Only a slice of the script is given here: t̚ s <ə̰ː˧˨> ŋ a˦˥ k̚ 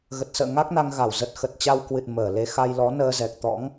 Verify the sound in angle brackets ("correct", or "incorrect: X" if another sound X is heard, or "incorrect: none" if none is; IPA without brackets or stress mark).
correct